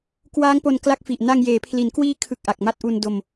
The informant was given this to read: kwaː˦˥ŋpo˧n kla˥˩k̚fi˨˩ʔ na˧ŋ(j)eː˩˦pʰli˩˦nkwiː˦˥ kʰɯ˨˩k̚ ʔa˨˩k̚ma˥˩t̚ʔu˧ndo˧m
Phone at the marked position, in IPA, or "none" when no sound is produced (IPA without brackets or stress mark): j